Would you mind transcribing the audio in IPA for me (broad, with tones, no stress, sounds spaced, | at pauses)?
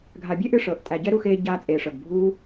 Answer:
ɡʱ a˨ bʲ e˦ ʔ ɨ˦ ʂ ɤː˨ ʔ tʼ æ˨ ɟ ɛ˦ ɾ u˧ x eː˧ ɟ aː˧ t͡sʼ eː˨ ʂ ɤ˨ ɡ bʱ uː˦